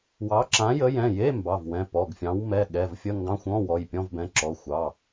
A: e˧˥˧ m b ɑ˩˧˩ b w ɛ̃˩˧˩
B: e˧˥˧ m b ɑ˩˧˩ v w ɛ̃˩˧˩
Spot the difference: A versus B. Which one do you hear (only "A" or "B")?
B